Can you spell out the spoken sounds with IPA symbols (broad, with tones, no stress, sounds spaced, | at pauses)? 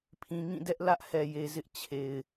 pʰ ĩ˨ ŋ ĩ˦˨ d ɛ˦ ʔ l ä˦ ʔ h ɛ˨ j e˨ z ɪ˦ ʔ t͡ɕʰ e˨ ɪ̯